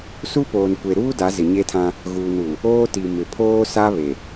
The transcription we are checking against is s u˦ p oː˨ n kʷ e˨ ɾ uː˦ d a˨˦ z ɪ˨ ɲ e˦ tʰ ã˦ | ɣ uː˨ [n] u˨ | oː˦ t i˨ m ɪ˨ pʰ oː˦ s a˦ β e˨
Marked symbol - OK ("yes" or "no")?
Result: yes